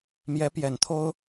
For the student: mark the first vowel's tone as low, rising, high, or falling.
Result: rising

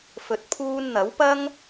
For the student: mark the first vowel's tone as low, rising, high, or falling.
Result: low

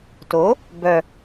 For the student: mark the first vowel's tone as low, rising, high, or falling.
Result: rising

